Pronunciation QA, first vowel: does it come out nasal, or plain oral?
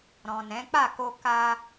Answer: nasal